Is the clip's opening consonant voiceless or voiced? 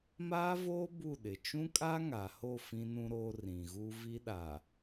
voiced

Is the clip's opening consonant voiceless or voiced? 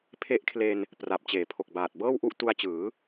voiceless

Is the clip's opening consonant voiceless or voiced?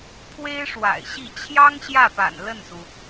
voiceless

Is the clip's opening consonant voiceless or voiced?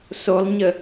voiceless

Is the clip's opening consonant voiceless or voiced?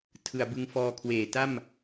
voiceless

